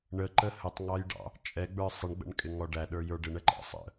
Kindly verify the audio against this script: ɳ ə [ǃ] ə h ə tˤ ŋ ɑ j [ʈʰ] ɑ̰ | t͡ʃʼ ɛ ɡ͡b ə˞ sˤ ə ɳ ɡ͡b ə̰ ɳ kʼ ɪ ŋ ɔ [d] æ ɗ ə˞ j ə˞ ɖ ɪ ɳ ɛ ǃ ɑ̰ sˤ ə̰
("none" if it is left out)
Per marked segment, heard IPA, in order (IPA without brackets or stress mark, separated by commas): ǃ, ɖ, ɖ